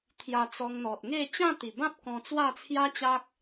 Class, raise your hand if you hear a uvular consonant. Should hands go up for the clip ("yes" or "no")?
no